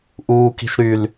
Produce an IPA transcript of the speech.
ʔ uː k i̤ ʃ ɾ y l

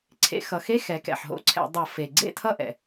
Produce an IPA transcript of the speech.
ǀʰ ḛ˧˩˧ x ʌ˩˧ x e˧˥˧ x ɛ˩˧ k ɛ̰˩ ħ ɦ o̰˥˩ ǀʰ ɛ̰˧˩˧ dˤ ʌ˧˩˧ f e˩ ɡ͡ǀ ḛ˥˩ tʰ ʌ˥˩ ʔ ɛ̰˩

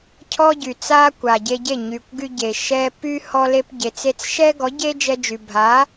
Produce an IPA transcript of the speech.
cʰ ɔ˦ ɟ y˨ t͡s a˦ kʷ a˨ ɟ e˧ ɟ e˦˨ ɲ y˨ kʷ ɡ y˧ ɟ e˨ ʃ ɛ˧ p y˦ h ɔ˧ l e˧ p ɟ e˨ t͡s e˧ t͡s ʃ ɛ˦ ɡ ɔ˨˦ ɟ e˦ d͡ʒ ɛ˧ d͡ʒ y˨ bʱ a˨˦

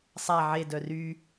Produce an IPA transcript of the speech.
sˤ a ʕ e d œ r y

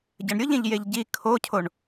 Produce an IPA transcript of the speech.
ɟ ɐ ɳ ɾʲ ʊ ʎ ẽ ʎ j e ʎ ɟ i kʰ o cʰ o ɳ

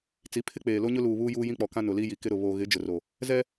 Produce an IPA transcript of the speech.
t͡s i˨˦ pʰ ɪ˦ k͡p eː˨ l o˦ ɲ ʊ˦ l uː˨ β uː˦ j uː˦ j ĩ˦ k͡p ɔ˨ k ã˦ n ʊ˨ l i˦ j i˨ k ɪ˦ ɾ ʊ˨ β o˨ ɣ ɪ˨˦ d͡ʒ ʊ˨ r o˨ | z ɛ˦

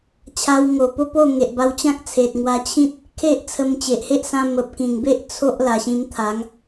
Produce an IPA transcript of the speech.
t͡ɕʰ a˧ w ŋ o˨˩ p o˦ p o˥˧ ŋ e˨ ʔ b a˧ w t͡ɕ ã˦ k̚ t͡sʰ e˨ t̚ ŋ w a˧ t͡ɕʰ ĩ˦ t̚ | kʰ e˦ ʔ t͡sʰ ə˧ m t͡ɕ e˨ ʔ h e˦ ʔ s ã˧ m ə˨ p̚ k ĩ˨˩ ŋ b e˦ ʔ t͡sʰ o˦ ʔ l a˨˩ ɕ ĩ˧ m t̪ʰ a˨˦ ŋ

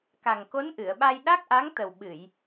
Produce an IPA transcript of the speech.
k a˨˩ ŋ k o˧˥ n ʔ ɨ˨˩˨ ə̯ ɓ a˧ j ɗ a˦˥ k̚ ʔ a˧˥ ŋ t̪ ə˨˩ w ɓ ɨ˨˩˨ j

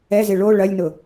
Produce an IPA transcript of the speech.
ɛ z ɪ ɭ o ɭ ɐ lʲ n ʊ

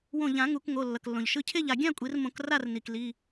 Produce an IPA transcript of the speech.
w õ˧˩ ʎ ã˨˩˦ ŋ u˨˩˦ k ŋ o˩˧˩ lː ʌ˩ k lː õ˩ ʎ ʃ ɯ˧˩ cʰ e˥˨ ʎ a˩ ɡʲ ã˥˨ kʷʼ i˨˩˦ r m õ˨˩˦ k r a˥˨ r n i˩ k l i˩˧˩

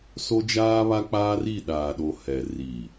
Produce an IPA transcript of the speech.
s o˦ d͡ʒ aː˦ β a˦ k͡p aː˦ r i˦˨ ɗ aː˨ ɗ o˨ h ɛ˨ r i˨

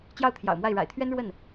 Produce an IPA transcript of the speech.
t͡ɕ j ɑ˥˩ ʊ̯ t̪ʰ j ɑ̰˨˩ ʊ̯ m w a˥˩ ɪ̯ ɻ a̰˨˩ ɪ̯ t̪ʰ ɥ ɛ˥ n ɻ w ə˥˩ n

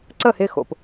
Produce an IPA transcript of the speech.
ǀ ə˥˩ h ɪ˥˩ x o̰˩ p

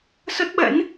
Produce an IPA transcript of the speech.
s ə˦˥ t̚ ɓ ɛ̰˧˥ n

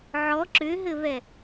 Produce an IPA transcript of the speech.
ʕ ɔ ǁ ʏ ɦ ɘ β ɛ

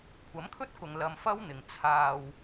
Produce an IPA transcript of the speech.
kʷʰ ɐ˨˥ m kʰ ɵ˥ t̚ k ʊ˨ ŋ l ɐ˧ m f ɐ˥ w n̪ ɪ˨ ŋ t͡sʰ aː˧ w

